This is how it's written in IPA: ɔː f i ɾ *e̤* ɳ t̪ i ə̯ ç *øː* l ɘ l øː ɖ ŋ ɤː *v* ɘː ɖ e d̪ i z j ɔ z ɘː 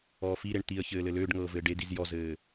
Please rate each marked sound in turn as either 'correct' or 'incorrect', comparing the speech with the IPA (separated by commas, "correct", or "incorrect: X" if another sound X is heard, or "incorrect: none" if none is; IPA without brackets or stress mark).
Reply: incorrect: e, incorrect: ɘː, correct